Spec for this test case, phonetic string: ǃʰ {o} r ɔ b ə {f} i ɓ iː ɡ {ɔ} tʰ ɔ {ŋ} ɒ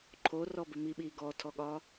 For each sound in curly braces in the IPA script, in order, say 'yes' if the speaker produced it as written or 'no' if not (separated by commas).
yes, no, yes, no